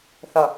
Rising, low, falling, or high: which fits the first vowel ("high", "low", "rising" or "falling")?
low